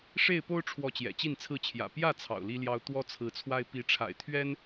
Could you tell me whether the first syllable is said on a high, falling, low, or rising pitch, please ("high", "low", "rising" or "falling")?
falling